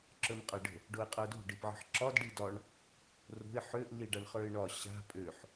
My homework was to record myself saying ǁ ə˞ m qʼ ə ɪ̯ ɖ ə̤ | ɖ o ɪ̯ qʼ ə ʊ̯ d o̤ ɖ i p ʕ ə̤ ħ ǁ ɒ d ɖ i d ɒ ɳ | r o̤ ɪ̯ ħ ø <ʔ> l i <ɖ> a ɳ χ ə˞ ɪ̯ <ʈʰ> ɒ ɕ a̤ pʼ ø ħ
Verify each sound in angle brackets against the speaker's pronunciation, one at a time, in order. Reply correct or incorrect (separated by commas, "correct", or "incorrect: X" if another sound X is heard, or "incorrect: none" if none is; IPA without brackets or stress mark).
correct, correct, incorrect: ɳ